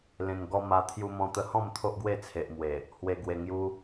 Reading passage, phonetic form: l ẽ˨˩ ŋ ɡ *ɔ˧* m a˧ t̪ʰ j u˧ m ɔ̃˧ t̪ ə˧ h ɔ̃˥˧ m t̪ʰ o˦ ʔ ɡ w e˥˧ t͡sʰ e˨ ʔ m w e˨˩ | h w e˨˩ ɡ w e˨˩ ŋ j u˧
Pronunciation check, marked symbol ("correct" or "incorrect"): correct